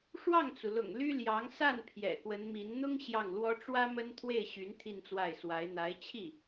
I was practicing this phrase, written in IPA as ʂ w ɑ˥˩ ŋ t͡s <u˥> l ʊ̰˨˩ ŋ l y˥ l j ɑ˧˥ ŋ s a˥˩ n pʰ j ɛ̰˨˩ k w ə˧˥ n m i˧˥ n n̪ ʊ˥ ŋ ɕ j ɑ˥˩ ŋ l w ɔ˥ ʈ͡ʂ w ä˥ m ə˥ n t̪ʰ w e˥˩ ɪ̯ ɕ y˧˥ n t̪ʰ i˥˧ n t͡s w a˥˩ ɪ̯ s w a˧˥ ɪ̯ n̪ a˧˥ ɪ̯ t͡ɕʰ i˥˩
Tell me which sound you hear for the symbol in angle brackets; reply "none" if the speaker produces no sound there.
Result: u˩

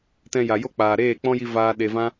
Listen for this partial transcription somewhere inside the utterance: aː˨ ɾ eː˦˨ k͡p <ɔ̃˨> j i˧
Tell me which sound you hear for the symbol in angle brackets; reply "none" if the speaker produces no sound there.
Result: ɔ̃˦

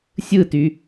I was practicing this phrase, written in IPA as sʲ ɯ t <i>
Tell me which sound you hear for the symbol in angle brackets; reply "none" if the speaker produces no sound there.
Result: y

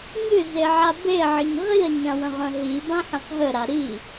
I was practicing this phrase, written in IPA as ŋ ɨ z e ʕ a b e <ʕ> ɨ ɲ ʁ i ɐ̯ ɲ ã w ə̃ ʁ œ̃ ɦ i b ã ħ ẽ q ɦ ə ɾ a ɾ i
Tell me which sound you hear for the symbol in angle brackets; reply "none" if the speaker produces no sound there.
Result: ʕ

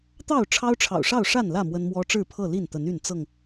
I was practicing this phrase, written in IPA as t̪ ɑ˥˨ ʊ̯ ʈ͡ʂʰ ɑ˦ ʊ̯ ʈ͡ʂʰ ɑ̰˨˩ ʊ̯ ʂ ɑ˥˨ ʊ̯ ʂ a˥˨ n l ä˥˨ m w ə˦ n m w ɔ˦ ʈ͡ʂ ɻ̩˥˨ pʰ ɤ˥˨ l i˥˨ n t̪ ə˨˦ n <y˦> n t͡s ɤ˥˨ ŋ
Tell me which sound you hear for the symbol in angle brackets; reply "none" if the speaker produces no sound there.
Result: y˥˨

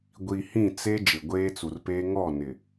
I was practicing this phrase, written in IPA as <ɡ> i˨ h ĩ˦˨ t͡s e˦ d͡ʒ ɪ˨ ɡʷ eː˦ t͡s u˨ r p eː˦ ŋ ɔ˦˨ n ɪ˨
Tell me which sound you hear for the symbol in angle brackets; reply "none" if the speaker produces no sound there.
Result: ɡʷ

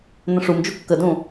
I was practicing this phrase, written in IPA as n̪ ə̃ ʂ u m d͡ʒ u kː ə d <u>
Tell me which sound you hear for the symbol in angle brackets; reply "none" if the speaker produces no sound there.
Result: ũ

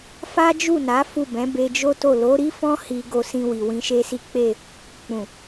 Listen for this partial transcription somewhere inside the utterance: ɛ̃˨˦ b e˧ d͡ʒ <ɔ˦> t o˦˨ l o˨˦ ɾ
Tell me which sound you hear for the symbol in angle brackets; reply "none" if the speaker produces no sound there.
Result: o˦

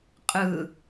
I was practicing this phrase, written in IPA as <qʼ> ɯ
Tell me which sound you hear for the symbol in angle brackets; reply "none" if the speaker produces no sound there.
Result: qʼ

